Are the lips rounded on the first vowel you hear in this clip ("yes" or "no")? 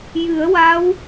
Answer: no